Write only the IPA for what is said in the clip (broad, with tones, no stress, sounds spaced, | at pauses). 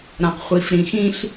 ɾ ã˨ q χʷ i˨ f ɾ ĩ˨ x ĩ˦ ɬ